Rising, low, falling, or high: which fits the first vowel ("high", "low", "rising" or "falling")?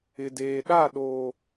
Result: low